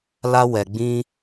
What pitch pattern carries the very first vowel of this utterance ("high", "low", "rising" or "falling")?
high